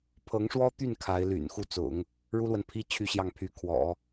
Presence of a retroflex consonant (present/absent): present